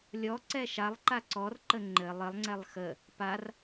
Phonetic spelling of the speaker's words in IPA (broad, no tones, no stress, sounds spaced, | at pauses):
lʲ ɔ ǀ ɛ ʃ a lˠ ǃ a ǀ ɔ r ǃ ə ŋ͡ǃ ɘ lˠ ɘ lˠ ŋ͡ǀ ɛ lˠ x ə | p a r